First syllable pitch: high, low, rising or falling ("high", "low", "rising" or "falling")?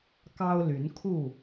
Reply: high